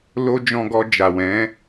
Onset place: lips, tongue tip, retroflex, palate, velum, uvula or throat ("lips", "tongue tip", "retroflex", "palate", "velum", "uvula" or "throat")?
tongue tip